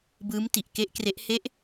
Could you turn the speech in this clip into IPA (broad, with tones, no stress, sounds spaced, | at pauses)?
b ɯː˦˥ m t i˨˩ ʔ k e˦˥ ʔ k r e˦˥ ʔ h e˦˥ ʔ